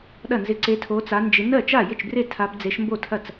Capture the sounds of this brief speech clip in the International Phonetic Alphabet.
ɗ ɐ˥˩ n z ɪ˧˥ ǀ e˧˥ tʰ o˧˥ t͡s a˧˥ n d͡ʒ ɪ˧˥ n ɜ˥˩ t͡ʃ a˥˩ j ɪ˥˩ t͡ʃ b r e˥˩ tʰ a˧˥ b d͡z e˧˥ ʃ m b o˥˩ tʰ ɐ˥˩ t͡s

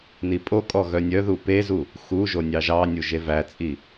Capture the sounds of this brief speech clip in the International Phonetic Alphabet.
n i pʼ o kʼ ɔ ɣ œ nʲ œ ð u p e z u | x u ʒ o nʲ ɑ ʒ ɑ nʲ u ʒ e v æ t͡sʼ i

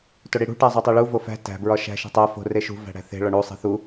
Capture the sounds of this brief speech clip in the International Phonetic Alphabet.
t o ɽ i ɽ ṳ ʈ æ zˤ o tˤ e ɭ u v o f æ̤ t æ̤ b ɹ ɒ ʃ æ̤ ʃ e̤ tˤ æ f o̤ r e ʃ ṳ v æ̤ ɽ æ̤ θ e̤ ɭ ɒ ɳ u sˤ e̤ θ u

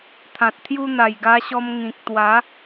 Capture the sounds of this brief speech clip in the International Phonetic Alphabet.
t̪ʰ ã˨ t̚ t̪ʰ j u˦ n̪ a˨˩ j ɡ a˧ ɕ ɔ˧ m ŋ ĩ˨ k̚ t̪ w a˨˦

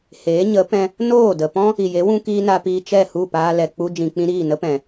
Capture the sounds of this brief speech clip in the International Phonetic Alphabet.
h eː˨˦ ɲ ə˨˦ p ɛ̃˧ | n oː˦˨ d ə˨ p ɔ̃˦ | i˨ j e˨˦ w ũ˦ k iː˦ n a˧ p iː˧ t͡ʃ ɛ˦˨ h u˦˨ p aː˧ l ɛ˨ k͡p u˧ d͡ʒ ĩ˨ k͡p ĩ˧ ɾ iː˦˨ n ə˦ p ɛ̃˨

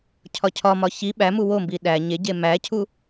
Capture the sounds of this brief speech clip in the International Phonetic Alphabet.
cʰ ɒ cʰ ɒ m ɒ ç i ɓ æ m u w o m b i ɗ æ ɲ e ɟ e m æ cʰ u

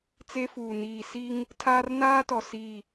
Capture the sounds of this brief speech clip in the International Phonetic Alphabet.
t͡s e˦ f uː˨ n iː˨ s i˦ ŋ | tʰ aː˦ r n aː˦ t ɔ˨ s i˦˨

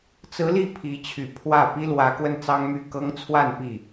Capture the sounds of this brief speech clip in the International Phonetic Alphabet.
t͡s ɹ̩˧˥ l i˥˩ pʰ i˧˥ t͡ɕʰ y˨˩ pʰ w ä˥˩ p i˥ l w ä˧˥ k w ə˥˩ n t͡s ɑ˥ ŋ m y˥˩ k ɤ˥ ŋ t͡sʰ w a˥˧ n p i˥˩

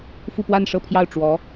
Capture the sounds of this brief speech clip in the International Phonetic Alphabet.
f u˥˧ p w a˥˧ n ʂ ɤ˥˧ pʰ j ɑ˥˩ ʊ̯ ʈ͡ʂ w ɔ˧˥

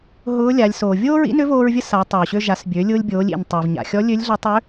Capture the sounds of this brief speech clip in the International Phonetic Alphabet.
ɦ ʊː˧˥ lʲ a˩˧ lʲ s oː˩ vʲ oː˥ ɹ ḭ˧˥ n ʏ˧˥ v oː˧ ɹ vʲ ə˧˥ s a˩˧ tˤ oː˩ ɕ ø˧ ʒ a˩˧ s bʲ ø˩˧ lʲ ʊː˧ lʲ bʲ oː˩˧ lʲ ḭ˩ n tˤ i˩ v ɲ a̰˩ xʲ ɔ˧˥ lʲ ø˧˥ lʲ ɮ ɐ˧˥ tˤ ø˧˥

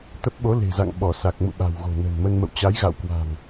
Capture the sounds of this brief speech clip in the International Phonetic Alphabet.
t̪ ə˦˥ p̚ ɓ o˨˦ l e̤˨˩ z a̰˧˨ ŋ ɓ ɔ˧˩ s a˨˩ k̚ m ṵ˧˨ ɓ a̤˨˩ w ɣ o̤˨˩ n ə̤˨˩ n m ə˧ n m ə̰˧˨ w t͡ɕ a˨˦ j ɣ a̰˧˨ w k w a̤˨˩ ŋ

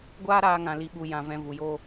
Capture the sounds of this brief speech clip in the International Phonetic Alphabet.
ɡʷ aː˦ ɾ aː˦ ŋ ã˧ l i˧ ɓ u˧ j ã˧ v ɛ̃˧ v u˨ j o˧

